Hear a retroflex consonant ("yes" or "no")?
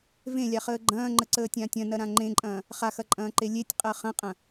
no